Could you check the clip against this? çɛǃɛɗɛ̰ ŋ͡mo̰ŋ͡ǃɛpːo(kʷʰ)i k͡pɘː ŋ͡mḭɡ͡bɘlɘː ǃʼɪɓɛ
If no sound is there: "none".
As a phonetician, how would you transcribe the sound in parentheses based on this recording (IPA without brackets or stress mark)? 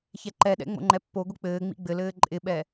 ɡʷ